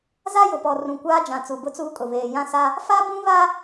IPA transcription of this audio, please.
z a˦ j ʊ˨ p ɔ˨ r ũ˨ kʷ aː˦ d͡ʒ ã˨ t͡s u˨ b ʊ˦ t͡s uː˦ kʼ ʊ˨ β eː˨ j ã˦ s a˦ | f a˦ b ũ˦ β a˦

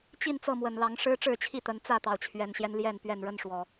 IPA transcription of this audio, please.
t͡ɕ i˥˨ n t͡s ɤ˥˨ m w ə˨˩ n l ɑ˨˦ ŋ ʂ ɻ̩˦ ʈ͡ʂ ɻ̩˥˨ t͡ɕʰ i˥˨ t̪ ə˨˦ n t͡s ä˥˨ t̪ ɑ˩ ʊ̯ t͡ɕʰ ɥ ɛ˨˩ n ɕ j ɛ˦ n l j ɛ˥˨ n p ɥ ɛ˥˨ n ɻ ə˦ n ʂ w ɔ˨˩

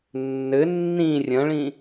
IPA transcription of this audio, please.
nː ɘ nː ĩ rʲ ɐ̃ ɭ ĩ

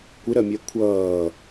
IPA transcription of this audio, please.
kʷ ɪ ɾ ɜ mʲ ɛ kʷʰ ʌː

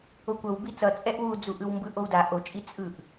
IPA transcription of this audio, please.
o kʷ ʌ w b i t͡s ʌ t͡sʼ ɛ ʔ w u d͡z u ʔ ɯ w m b ɯ ʔ o w d a ʔ o t͡ʃʼ i t͡sʼ ɯ ʔ

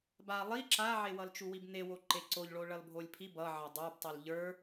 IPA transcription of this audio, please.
b a lˠ i ǁ a ʕ e w ʌ l t͡ʃ u w i b n e w o ǃ e ǀ o ʎ ɭ o ɭ ʌ l bʱ o lʲ pʰ i b ʌ ʕ ʌ dˤ ə˞ b tˤ i l ʎ ə˞

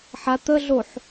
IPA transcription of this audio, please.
ħ a t̪ ə ɮ o ħ

